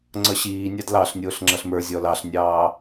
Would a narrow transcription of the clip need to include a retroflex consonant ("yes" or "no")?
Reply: no